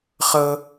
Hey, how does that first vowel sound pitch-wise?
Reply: high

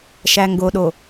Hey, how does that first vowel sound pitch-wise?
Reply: low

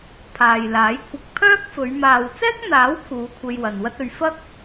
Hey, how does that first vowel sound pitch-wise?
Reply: low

